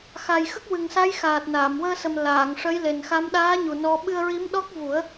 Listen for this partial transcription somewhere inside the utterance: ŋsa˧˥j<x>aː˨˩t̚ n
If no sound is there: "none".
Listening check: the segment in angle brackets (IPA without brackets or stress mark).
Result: x